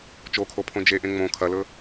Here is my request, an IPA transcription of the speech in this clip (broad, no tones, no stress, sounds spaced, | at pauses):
t͡ʃ o kʰ o pʰ õ d͡ʒ e ʔ ẽ ŋ͡m õ kʰ ɐ l ɵ